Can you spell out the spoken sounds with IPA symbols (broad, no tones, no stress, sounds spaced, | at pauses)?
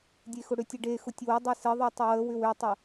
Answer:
dʲ e x ʊ ɽ ʏ tʲ e ɖ e x ʊ tʲ w ʊ dˤ e s ə ðˤ ø tˤ ɪ w ə w ʏ w ʏ tˤ ʊ